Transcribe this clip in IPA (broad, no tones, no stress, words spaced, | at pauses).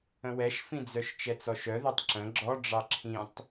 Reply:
ə̃wɛʃfĩd͡zœʃ t͡ʃɛt͡sɔʃœðɛtˤ ǁə̃ ɡ͡ǁɔ ɖ͡ʐɑǁʰĩtˤ